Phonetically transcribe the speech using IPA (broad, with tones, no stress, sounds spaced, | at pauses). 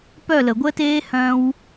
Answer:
p œ˦˨ l ə˨ ɡʷ əː˦ t eː˦ h œ̃˧ w